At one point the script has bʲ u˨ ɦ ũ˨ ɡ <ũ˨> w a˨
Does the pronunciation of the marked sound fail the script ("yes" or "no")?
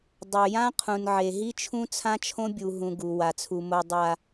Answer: yes